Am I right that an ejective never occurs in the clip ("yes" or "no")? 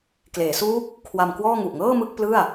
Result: yes